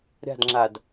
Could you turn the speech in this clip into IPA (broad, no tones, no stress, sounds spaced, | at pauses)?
ɾʲ a̤ d ŋ͡ǁ a d